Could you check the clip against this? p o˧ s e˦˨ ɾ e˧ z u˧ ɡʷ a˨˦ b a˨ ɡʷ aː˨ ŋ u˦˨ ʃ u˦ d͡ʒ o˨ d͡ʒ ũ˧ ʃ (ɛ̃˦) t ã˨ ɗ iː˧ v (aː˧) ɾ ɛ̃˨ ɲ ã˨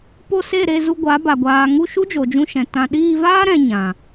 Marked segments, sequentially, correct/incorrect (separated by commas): incorrect, incorrect